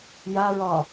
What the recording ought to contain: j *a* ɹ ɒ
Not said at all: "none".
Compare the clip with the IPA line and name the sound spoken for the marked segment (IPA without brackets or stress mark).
a